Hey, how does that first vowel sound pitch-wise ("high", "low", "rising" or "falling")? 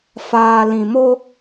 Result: low